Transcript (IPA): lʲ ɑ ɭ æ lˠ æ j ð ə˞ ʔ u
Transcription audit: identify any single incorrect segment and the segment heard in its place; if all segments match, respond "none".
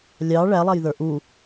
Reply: none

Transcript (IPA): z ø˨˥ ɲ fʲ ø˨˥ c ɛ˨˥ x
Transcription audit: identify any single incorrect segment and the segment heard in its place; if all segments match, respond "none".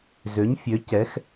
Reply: none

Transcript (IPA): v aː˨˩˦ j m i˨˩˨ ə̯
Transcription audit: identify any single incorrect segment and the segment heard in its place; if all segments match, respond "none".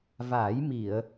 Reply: none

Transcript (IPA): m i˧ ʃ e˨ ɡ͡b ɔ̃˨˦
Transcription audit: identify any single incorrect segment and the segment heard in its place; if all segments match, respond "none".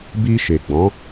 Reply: m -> b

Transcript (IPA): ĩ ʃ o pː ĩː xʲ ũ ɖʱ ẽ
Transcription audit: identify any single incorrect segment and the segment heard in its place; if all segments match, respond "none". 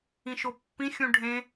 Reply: ĩː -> ĩ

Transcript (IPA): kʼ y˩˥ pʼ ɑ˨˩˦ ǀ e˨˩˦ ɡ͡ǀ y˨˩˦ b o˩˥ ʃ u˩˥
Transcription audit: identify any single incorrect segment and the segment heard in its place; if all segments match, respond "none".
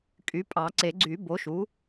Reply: none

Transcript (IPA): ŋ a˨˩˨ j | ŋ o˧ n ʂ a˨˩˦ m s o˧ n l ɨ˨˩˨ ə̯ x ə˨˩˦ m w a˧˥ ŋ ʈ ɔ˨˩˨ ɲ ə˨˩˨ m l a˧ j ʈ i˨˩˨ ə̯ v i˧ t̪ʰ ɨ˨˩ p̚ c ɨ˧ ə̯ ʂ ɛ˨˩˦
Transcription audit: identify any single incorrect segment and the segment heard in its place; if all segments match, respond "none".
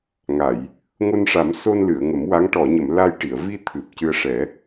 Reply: x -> ŋ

